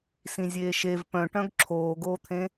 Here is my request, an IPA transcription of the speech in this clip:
sĩzʲeːʃev pœ̃ʈœ̃ɡ ǁʰoːɡoːt̪ʰẽ

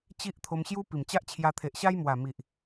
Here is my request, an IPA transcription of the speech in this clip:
t͡ɕi˦ʔt̪ʰo˧m ɕju˧ pi˨˩mt͡ɕa˦ʔt͡ɕʰja˧ t̪ʰe˨ʔɕa˦jmwa˨˩ mi˨ʔ

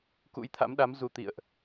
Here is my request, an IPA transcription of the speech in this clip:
kṵ˧˥jt̪ʰa̰˧˥mɗa˨˦m zu˧t̪ḭ˧˨ə̯ʔ

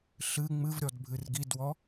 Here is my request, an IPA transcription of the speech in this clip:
ɬɨ ŋ͡mɨvɾʲɔd bʱɨrɡidwɔ

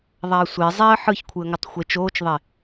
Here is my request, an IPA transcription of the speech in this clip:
ðˤaə̯sʷe zˤɛə̯ ħɯçkʷʰɯə̯ŋɤtˤ xʷet͡ʃoːt͡ʃðˤe

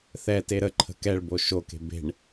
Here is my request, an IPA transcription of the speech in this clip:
θɛte ɾəǃʰə̤ kɛɭbo ʃoke̤ be̤ɳ

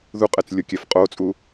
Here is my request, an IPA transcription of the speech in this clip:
ðuqʼɛt͡slʲokʲɛf qʼot͡sʼu

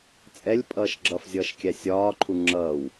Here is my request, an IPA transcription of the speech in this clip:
t͡sʼɛlʲ pʼʌːʃɡ͡ǁʌfzʲʌːʃ kʲæsʲɒːǃʰu ŋ͡ǁʌːw

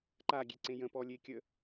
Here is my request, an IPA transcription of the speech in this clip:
ǃaɡʲeǀẽ jə̃pɔlʲekʲə

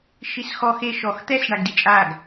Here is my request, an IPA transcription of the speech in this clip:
ʃisxɔx e ʃɔx t̪ɛs ɳaɡdit͡ʃʼaɡ

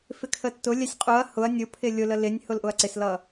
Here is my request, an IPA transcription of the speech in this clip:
fɪkʰətːʊlʲɛsʲ qʼuɐ̯ hʊɐ̯ nʲʊ pʰɪlʲʊlə lɪnʲ hʊlʔʊɐ̯ǀɪslʌ

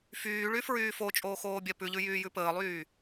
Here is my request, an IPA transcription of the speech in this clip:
fyːɭyfɹyː fot͡ʃʼoːxoːbʲɛ pʉʎʉjyːjʉ pəːlˠyː

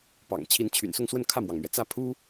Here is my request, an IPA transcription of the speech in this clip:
pɑ̰˨˩ŋ t͡ɕʰi˧˥nt͡ɕʰy̰˨˩nsʊ˥˧ŋswə˥˧n kʰä˥˩mwɑ˩ŋmɥɛ˩t͡sä˥˩ pʰu˥

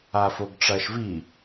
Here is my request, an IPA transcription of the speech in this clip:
afoɡʈ͡ʂɐʃvi

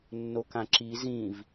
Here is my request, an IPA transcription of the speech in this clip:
nːokãǁi zĩv

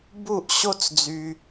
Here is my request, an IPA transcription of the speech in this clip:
bu˦˨ʔ ɕo˦t͡sd͡zy˨

